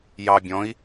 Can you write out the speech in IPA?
jɑ bʲɔ̃i̯

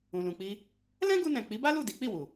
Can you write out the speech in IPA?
ũ˨lũ˨k͡pi˧ | lɛ̃˦ɡu˧nɛ̃˨ k͡pi˨˦ba˦lu˦˨ di˨˦k͡pi˦˨wu˨

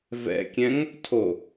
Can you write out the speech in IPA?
vɛ̰kʲɛ̃ŋ | tʰo

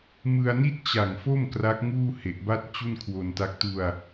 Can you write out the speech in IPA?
mɯ˧a̯ni˥˩t̚t͡ɕa˨˩ŋfo˥˩m kra˦˥k̚ŋuː˥˩he˨˩ʔ ba˥˩t̚t͡ɕu˥˩nkʰwo˧nta˦˥k̚ tu˧a̯

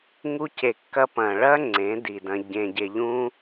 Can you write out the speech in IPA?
ŋu˧ce˨kːɐ˧ pɐ̃ː˨ɭɐː˦ ŋ͡ǀẽ˨˦di˨dɐ̃˧ ɟẽ˨ɟe˨ʎũː˧

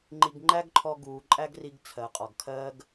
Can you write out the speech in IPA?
ŋ͡ǃi˧ɡŋ͡ǃæ˥ɡǃʰɔ˧ ɡuː˩ǃʼæ˥ɡri˧ɡ t͡sʰɜ˩qʼɒ˩ɡkʰɜː˥ɡ

